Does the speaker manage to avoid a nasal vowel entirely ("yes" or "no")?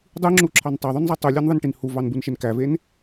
yes